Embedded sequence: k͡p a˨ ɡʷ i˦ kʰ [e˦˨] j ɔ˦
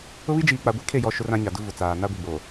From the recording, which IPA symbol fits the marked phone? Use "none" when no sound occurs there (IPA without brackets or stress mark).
e˦˨